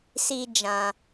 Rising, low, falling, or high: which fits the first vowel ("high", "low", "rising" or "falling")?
high